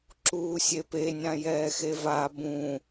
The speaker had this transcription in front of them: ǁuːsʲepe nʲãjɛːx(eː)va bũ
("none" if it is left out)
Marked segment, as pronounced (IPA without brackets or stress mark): e